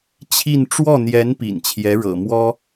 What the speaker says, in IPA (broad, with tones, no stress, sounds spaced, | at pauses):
t͡ɕʰ i˥˧ n ʈ͡ʂ w ɔ˥˩ n̪ j ɛ˧˥ n p ḭ˨˩ n t͡ɕʰ j ɛ˧˥ ɻ ɤ̰˨˩ m w ɔ˥